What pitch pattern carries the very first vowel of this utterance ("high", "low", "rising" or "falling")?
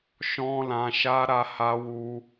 high